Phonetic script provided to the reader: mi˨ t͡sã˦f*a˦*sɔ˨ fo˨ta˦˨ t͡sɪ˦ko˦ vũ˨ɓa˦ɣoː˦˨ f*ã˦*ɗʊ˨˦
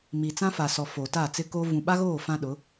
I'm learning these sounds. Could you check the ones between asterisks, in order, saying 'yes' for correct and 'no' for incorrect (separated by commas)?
no, yes